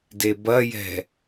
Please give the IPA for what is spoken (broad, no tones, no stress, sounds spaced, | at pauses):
d e b ɐ j ɛ̤